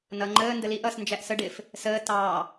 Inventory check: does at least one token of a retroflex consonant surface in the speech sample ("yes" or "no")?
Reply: yes